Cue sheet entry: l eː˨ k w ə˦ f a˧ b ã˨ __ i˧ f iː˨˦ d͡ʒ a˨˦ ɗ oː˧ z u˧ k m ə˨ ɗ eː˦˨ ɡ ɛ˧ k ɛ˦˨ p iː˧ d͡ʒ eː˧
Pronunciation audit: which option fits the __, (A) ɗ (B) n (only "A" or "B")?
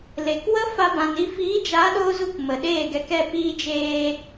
B